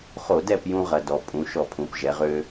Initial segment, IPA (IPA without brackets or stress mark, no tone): χ